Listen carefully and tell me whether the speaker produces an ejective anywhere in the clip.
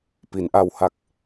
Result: no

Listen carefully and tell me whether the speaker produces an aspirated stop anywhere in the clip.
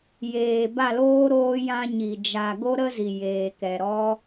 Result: no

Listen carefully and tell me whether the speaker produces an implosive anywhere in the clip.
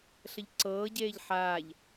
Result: no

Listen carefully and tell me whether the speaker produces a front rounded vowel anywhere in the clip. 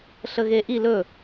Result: no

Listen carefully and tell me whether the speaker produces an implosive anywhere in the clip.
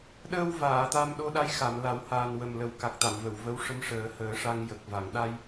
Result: yes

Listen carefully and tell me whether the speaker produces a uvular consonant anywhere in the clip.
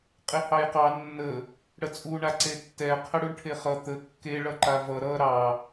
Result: yes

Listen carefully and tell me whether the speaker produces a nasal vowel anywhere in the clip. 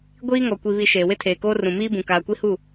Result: yes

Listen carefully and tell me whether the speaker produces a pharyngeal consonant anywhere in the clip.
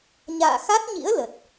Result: no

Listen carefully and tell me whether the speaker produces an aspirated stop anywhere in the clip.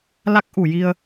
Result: no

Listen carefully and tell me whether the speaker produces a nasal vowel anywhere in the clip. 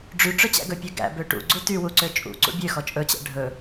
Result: no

